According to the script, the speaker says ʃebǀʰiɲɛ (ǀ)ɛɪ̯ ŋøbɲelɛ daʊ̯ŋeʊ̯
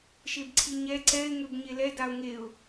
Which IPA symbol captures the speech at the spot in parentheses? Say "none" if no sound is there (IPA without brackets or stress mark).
ǀ